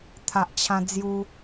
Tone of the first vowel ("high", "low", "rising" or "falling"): low